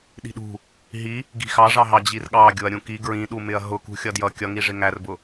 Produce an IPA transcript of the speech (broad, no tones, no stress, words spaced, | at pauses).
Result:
ɗi̤ɗṳ | ɦi | ɡi̤xɑʐɑ ɦɑd͡ʑirɠɑ ɡʲʊɐ̯ɾʲũ ki ɡɹĩɗumɪɐ̯ ɦʊkṳ xʲʌdjʌ kʲʌŋiʐɪ ŋærbʊ